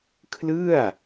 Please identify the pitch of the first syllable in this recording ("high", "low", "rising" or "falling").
falling